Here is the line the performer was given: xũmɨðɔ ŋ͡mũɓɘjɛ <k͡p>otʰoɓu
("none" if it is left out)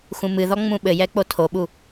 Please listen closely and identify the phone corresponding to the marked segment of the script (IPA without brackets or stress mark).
k͡p